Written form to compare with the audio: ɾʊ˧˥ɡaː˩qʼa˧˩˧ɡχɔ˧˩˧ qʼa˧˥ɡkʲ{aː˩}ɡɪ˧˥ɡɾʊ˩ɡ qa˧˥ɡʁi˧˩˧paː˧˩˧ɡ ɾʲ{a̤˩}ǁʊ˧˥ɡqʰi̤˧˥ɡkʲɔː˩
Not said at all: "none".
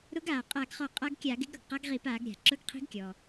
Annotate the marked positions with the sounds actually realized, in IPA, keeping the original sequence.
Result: aː˧˩˧, a̤˩

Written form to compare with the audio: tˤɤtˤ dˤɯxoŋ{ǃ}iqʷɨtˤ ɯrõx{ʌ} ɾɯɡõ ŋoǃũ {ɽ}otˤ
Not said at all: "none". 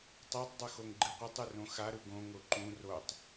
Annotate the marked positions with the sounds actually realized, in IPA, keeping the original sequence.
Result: ɡ͡ǃ, a, r

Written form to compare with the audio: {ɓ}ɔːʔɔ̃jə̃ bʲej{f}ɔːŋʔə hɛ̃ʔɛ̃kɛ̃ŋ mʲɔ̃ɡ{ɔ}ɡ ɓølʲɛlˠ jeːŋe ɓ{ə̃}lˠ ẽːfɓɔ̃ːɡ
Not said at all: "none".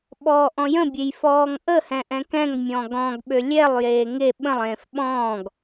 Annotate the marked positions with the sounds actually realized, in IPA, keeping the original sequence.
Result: ɓ, f, ɔ̃, ə̃

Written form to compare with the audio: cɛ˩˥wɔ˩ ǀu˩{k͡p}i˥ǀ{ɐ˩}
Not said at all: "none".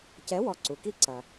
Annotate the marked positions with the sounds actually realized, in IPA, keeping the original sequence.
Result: k, ɐ˩

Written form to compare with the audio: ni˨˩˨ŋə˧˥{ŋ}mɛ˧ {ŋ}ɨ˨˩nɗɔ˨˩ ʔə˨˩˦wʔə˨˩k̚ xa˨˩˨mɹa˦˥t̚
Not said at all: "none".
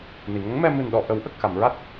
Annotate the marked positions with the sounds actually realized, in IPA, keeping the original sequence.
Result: ŋ, m

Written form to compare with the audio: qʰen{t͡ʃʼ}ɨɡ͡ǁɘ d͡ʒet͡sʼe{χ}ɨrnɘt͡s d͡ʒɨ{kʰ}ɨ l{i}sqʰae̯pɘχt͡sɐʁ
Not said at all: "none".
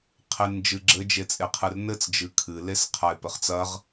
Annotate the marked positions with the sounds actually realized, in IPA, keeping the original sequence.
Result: d͡ʒ, qʰ, kʰ, e

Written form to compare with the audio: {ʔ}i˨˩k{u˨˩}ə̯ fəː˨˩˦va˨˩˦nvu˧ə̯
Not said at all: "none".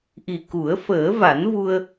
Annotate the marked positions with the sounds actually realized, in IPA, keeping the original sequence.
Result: ʔ, u˨˩˦

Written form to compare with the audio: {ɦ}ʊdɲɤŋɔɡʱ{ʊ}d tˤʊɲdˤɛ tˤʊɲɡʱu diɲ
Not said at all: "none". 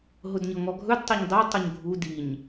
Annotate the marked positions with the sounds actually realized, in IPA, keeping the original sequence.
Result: ɦ, ɵ

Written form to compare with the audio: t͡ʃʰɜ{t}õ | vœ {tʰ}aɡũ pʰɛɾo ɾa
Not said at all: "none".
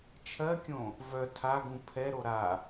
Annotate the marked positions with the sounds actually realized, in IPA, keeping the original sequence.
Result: kʲ, tʰ

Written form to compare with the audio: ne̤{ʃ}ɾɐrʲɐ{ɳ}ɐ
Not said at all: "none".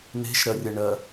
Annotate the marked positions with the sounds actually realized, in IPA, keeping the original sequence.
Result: ʃ, ɳ

